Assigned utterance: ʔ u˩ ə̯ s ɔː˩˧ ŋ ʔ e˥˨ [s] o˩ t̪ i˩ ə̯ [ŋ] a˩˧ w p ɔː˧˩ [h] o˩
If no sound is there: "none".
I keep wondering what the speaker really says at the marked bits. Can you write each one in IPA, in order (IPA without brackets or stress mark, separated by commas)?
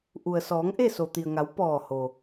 s, ŋ, h